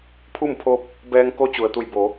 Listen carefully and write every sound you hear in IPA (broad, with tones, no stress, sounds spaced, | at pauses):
pʰ u˥˨ m pʰ o˧ p̚ | b ɛː˧ ŋ k o˧˥ t͡ɕ u˩ ə̯ t̪ u˧˩ j b o˩˧